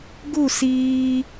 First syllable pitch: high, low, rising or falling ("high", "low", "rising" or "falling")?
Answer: falling